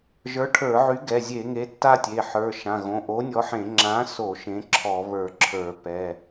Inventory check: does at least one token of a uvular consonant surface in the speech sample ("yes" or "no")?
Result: no